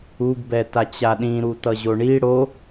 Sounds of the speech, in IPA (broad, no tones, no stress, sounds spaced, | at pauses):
u ɡ b ɛ t a t͡ɕ a ɗ ĩ ɾ u t ʌ ʑ o ɳ i ɽ o